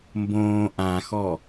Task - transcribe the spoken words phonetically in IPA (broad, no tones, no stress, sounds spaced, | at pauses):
m b õː ʔ ã x ɔ